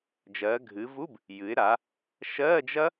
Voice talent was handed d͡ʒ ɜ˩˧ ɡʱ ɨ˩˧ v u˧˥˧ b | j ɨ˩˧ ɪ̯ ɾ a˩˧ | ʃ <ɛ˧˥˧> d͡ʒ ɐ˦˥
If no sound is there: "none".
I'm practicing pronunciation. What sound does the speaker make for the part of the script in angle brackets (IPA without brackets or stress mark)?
ɜ˧˥˧